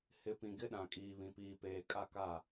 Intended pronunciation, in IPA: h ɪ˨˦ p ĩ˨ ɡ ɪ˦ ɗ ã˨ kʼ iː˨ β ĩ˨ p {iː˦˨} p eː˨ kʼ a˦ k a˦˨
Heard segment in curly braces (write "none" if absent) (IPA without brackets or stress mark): iː˨